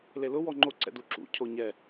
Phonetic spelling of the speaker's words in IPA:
l e l ʊ w ɔ ŋ͡ǃ o ǀ ɛ̰ d u ǁ ṵ cʰ o ɲ ɛ

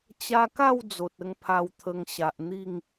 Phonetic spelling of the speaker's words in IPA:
t͡ɕ a˧ k a˥˧ w d͡z o˨ t̚ ə˧ ŋ pʰ a˧ w t̪ʰ ə˧ ŋ ɕ a˨ ʔ n̪ i˥˧ ŋ

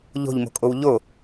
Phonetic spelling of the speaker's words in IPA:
ʎ o̤ ʎ m o̤ kʼ o w ʎ o

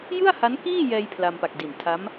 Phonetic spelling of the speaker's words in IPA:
j ɯ˥˩ a̯ h a˦˥ n k iː˥˩ j ɛː˧ j pʰ l a˧ m p a˨˩ k̚ d i˨˩ n tʰ a˦˥ m

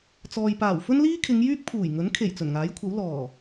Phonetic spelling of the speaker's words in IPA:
t͡s ɔː˨ j p aː˨˩ w f ɵ˥ n l iː˥ kʰ ɪ˨˧ ŋ j yː˥ k̚ pʰ uː˨˩ j ŋ ɵ˨˥ n kʰ e˨˩ j t͡s ɵ˨˩ n ŋ aː˨˥ j kʷʰ ɐ˨˥ w l ɔː˨˩

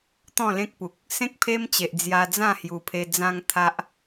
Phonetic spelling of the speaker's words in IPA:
t̪ ɔ̃˥˧ l ẽ˦ k̚ p u˨ k̚ | s ẽ˦ k̚ pʰ e˦ m t͡ɕ e˨ ʔ d͡z j a˧ d͡z ã˥˧ h j u˨˩ pʰ e˧ d͡z ã˧ ŋ t̪ʰ a˦ ʔ

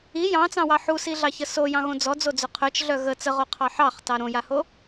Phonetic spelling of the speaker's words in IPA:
i j ɑ̃ t͡s ɑ̃ w ɑ ħ u s i ɮ ɑ ç ə s o j ɑ̃ ɣ õ d͡z ɔ d͡z o d͡z œ qʰ œ t͡ʃ ɮ œ ɣ ə t͡s ə ʁ o qʰ ɑ ħ ɑ χ t ɑ ɾ õ j a h o

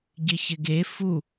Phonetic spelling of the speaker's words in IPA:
ɟ ɪ ç ɪ ɡ e f u

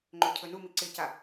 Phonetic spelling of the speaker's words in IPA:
ŋ͡ǃ ɵ cʰ ɵ n u m i ǀ ɪ c a

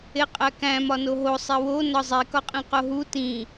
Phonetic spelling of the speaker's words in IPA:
e qʼ æ k æ̃ m ɒ n o ɦ o sˤ e w o n ɒ zˤ i k ɒ qʼ ĩ q o ɦ u t ĩ

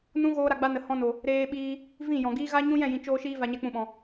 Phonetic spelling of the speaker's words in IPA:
n ũ˦ ɣ oː˦ ɾ a˧ ɡ͡b a˦ n ə˨ h ɔ̃˧ n o˨ | ɾ eː˧ ɓ iː˧ | v ĩ˦˨ j ɔ̃˨ ɡ iː˦ ɣ a˦ ɲ ũ˦ j ɛ̃˦˨ j ĩ˨ t͡ʃ oː˧ ʃ iː˧ v a˧ ɲ ɛ˦ k͡p ũ˧ ɓ ɔ̃˨

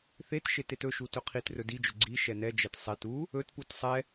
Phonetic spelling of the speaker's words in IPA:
θ e t ʃ e t e t ɵ ʃ u t ɵ qʰ i t r ɵ d i d͡ʒ ɵ ɡ͡ǀ i ʃ ɛ n ɛ d͡ʒ ɛ t sˤ ɛ t u | ɵ t p u t sˤ ɛ

